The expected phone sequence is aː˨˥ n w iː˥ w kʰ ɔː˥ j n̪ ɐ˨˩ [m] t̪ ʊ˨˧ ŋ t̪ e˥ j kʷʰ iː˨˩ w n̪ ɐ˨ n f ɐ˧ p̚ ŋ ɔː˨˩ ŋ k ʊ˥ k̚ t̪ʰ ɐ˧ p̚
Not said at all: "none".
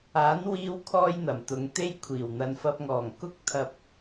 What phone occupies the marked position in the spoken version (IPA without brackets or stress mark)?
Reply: m